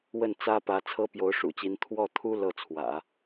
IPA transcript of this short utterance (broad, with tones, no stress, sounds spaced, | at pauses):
w ə˥˩ n t͡s ä˥ p ä˧˥ t͡sʰ ɤ˥ p j o˧˥ ʊ̯ ʂ ṵ˨˩ t͡ɕ i˧˥ n t̪ʰ w ɔ˥˩ t̪ʰ u˥ l ɤ˥˩ t͡sʰ w ä̰˨˩˦